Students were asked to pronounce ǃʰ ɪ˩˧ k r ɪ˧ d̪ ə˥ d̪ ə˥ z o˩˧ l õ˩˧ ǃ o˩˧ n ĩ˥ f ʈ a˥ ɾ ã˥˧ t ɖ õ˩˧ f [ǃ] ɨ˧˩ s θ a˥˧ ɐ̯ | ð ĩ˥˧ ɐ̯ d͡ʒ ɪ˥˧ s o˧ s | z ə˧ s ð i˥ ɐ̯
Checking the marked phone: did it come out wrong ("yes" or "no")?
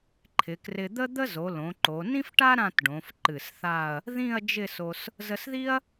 no